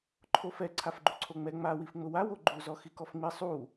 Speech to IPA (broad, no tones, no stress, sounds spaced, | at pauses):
ǃʰ o f ɛ ǀʰ a f ɡ͡ǃ u ǀʰ o ŋ͡m ɛ ŋ͡m a w i f ŋ͡m ʊ w a w o ɡ͡ǃ u z ɔ x i k ɔ f ŋ͡m i sˤ u